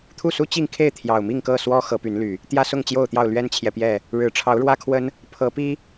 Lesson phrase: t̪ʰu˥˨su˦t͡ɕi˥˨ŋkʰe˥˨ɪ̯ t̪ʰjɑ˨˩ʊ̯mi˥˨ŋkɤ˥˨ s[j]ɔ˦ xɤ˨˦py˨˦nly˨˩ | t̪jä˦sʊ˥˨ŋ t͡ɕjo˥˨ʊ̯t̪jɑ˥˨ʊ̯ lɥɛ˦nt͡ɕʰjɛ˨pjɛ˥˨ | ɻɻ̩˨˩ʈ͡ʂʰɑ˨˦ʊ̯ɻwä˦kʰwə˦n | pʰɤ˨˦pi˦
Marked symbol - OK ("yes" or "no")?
no